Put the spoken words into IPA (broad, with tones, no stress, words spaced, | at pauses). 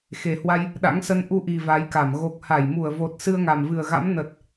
xe˨˩hwa˧j | ɗa̰˧˥ŋsə˧n ʔu˧ʔi˨˩ va˨˦jka˧˩m ɣo˨˩k̚ha˧˩j mu˧˩ə̯vo˨˩t̚ sɨ˧ə̯ŋa˨˩mvɨ˨˩ə̯ɣa̰˧˥m nə˨˩t̚